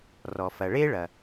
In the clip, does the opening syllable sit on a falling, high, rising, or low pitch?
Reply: low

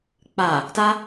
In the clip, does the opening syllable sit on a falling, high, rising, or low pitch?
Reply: low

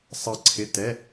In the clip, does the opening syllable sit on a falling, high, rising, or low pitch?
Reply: falling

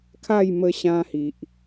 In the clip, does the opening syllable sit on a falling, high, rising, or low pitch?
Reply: falling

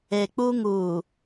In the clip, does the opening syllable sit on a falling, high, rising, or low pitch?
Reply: low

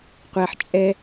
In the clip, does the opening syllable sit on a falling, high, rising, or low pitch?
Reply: low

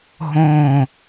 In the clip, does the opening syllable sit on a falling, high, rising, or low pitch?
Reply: falling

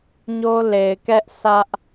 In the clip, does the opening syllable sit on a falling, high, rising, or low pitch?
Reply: high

